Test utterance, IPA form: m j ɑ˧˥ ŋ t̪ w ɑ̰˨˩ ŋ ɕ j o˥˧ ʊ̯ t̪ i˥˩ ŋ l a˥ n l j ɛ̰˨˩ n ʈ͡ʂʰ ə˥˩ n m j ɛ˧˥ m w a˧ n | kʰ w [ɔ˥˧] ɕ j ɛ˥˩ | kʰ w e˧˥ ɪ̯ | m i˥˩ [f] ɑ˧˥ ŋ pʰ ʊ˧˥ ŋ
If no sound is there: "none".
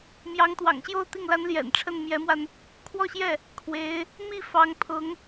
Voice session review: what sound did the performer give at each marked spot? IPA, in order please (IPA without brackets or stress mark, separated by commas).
ɔ˥˧, f